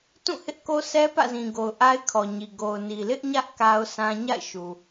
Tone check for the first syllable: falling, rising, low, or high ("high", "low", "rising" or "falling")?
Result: falling